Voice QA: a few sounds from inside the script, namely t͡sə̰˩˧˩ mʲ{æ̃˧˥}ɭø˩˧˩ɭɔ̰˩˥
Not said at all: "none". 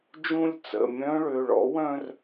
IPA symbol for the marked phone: œ̃˧˥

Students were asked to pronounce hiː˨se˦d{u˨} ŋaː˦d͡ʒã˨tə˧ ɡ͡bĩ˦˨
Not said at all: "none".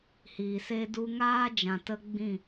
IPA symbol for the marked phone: u˦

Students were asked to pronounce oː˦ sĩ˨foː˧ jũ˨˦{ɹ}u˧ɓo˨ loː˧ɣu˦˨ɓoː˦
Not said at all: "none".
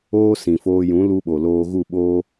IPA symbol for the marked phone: l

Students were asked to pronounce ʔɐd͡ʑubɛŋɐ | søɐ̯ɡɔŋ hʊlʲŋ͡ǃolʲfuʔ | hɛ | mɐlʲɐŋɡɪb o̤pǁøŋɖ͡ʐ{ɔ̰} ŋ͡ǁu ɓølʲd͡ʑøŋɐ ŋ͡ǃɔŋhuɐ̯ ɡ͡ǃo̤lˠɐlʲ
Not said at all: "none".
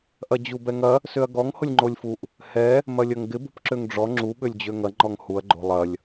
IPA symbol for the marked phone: ɔ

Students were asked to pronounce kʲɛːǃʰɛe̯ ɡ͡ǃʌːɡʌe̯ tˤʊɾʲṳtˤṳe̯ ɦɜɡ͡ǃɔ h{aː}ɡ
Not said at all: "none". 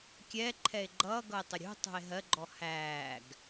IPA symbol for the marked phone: æː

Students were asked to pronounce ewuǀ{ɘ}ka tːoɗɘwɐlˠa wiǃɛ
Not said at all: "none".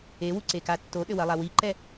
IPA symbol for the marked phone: e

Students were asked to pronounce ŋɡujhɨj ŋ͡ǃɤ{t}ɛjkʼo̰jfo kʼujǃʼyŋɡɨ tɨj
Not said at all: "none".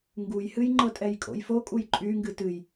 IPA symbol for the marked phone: tʼ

